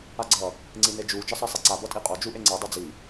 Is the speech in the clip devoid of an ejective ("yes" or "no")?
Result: no